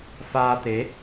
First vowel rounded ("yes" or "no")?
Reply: no